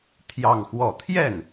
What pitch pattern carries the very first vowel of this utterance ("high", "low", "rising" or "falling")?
falling